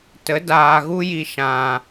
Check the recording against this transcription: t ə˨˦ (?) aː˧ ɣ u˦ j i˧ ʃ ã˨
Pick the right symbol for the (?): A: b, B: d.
B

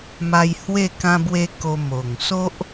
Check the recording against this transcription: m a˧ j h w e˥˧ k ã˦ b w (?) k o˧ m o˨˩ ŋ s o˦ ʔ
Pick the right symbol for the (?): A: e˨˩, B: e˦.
B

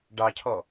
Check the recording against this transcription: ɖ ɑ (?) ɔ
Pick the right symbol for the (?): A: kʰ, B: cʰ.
B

